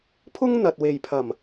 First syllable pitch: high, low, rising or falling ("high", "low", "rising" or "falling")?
high